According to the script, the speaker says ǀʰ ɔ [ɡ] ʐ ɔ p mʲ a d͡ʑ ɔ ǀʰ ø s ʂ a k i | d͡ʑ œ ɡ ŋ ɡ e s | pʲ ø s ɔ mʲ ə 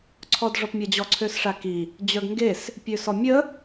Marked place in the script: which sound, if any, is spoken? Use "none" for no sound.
d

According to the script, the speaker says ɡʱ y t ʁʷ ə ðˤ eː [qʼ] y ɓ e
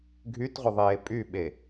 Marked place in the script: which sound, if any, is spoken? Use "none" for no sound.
pʼ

